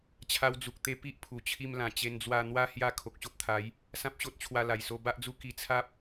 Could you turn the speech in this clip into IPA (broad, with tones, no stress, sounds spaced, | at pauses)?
t͡ɕʰ a˧ w d͡z u˨ k̚ t̪ e˧ p i˦ ʔ pʰ u˨˩ t͡ɕʰ i˧ m l ã˨˩ t͡ɕ e˧ n d͡z w a˧ n̪ w a˦ h j a˧ kʰ o˨ k̚ ɕ o˦ p̚ t̪ʰ a˨˦ j | s ã˦ p̚ ɕ o˦ t̚ t͡ɕʰ w a˧ l a˨˩ j s o˧ b a˦ ʔ d͡z u˦ k i˧ t͡sʰ a˦ p̚